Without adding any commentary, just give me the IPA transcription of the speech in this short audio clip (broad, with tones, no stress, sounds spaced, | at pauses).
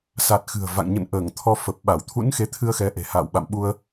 s a˨˩ t̚ x ɨ̤˨˩ ə̯ v a̰˧˨ ŋ ɲ ə̰˧˨ n ʔ əː˧˩ ŋ t̪ʰ ɔ˧ f ə˨˩ p̚ ɓ a˧˩ w t̪ʰ ṵ˧˥ n x e˨˦ t̪ʰ ɨ˧ ə̯ x ɛ˨˦ ʔ e̤˨˩ h a̰ː˧˨ w ɓ a̰˧˨ m ɓ u˧ ə̯